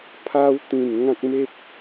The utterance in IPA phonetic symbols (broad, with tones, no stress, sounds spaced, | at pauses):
pʰ a˧ w t̪ ĩ˨˩ n ŋ ã˦ k̚ m e˦ p̚